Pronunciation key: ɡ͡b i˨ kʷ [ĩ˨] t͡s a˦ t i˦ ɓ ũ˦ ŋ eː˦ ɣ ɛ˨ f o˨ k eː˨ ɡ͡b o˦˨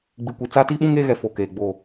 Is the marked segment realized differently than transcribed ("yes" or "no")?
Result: yes